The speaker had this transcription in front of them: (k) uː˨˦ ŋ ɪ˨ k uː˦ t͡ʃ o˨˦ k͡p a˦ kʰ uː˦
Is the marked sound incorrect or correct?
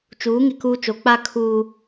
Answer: incorrect